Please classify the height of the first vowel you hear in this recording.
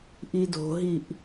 high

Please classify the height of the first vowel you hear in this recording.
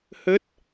mid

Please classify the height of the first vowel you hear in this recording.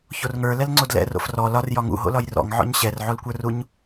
mid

